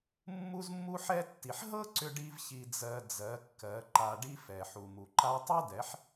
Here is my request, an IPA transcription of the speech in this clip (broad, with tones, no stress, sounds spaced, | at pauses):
mː u˦ z mː u˦ ħ ɛ˦ tː i˨ ħ ɦ ɤ˦ ǀ ʏ˦ ɖ i˦ v ç i˧ d͡z ɜ˧ d͡z ɜ˨˦ kː ɜ˨˦ ǃ a˧ ɖ i˦ f ɛ˨ ħ u˨ m u˨ ǃ a˦ tˤ ɛ˦ d ɛ˨˦ ħ